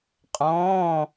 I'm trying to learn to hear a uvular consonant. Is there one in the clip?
yes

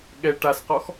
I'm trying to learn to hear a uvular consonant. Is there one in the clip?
yes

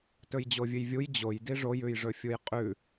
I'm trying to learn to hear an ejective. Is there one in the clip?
yes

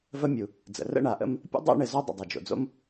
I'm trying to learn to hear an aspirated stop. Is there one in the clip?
no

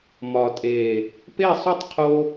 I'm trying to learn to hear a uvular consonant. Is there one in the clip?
yes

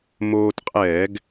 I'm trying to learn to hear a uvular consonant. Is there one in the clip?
yes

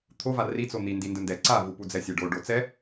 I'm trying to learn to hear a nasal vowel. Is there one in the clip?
no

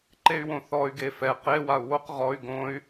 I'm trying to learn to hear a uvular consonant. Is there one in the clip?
yes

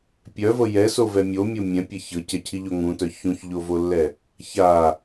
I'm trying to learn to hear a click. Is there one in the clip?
no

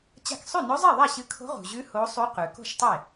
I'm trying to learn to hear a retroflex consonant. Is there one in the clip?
no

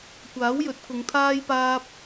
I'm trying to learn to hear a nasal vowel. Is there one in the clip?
no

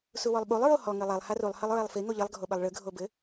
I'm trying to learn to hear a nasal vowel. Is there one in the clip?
no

